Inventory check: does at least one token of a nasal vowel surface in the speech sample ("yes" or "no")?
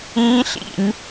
yes